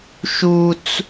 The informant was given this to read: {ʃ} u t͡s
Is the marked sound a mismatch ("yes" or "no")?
no